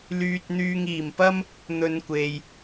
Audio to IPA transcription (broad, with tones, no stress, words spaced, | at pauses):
lyː˧t̚n̪yː˧ŋ iː˨˩mpɐ˥m | n̪ɵ˧nkʷe˨j